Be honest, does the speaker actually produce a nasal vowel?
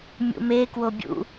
no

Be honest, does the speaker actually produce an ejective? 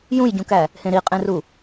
yes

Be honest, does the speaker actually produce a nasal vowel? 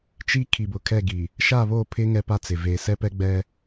no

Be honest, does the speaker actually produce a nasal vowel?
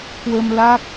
no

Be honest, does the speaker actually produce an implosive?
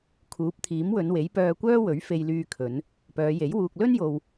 no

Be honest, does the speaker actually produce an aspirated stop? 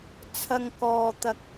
yes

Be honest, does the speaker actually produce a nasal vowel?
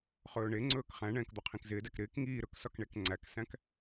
yes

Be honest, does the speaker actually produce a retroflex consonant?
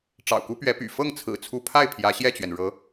yes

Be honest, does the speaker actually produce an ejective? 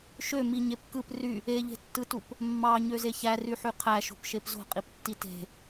yes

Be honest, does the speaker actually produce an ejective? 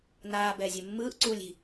no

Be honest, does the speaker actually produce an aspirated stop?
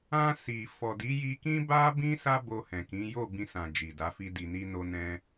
no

